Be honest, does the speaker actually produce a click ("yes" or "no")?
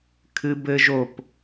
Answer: no